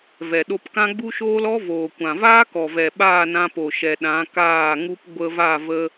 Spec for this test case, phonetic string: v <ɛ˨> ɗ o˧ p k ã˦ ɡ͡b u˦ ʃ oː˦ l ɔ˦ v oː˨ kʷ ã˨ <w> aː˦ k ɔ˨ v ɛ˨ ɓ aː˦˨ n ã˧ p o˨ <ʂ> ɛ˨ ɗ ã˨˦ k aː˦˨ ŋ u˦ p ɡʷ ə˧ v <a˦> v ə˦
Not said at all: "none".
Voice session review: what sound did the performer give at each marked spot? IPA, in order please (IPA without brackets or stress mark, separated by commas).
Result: ɛ˨, v, ʃ, a˦˨